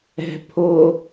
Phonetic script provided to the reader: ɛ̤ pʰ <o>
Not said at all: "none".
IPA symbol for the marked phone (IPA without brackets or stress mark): o